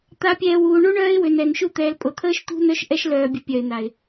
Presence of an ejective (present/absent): present